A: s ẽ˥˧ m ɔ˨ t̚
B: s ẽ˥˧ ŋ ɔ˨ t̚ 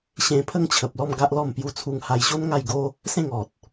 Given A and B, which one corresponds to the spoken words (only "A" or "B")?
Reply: B